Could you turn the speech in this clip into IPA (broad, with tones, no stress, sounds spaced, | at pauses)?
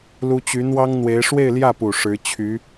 l u˥ t͡ɕ y˧˥ n̪ w ɑ˥ ŋ n̪ w e˧˥ ɪ̯ ʂ w e˥˧ ɪ̯ l j ä˥˩ p u˨˩ ʂ ɻ̩˧˥ t͡ɕʰ y˧˥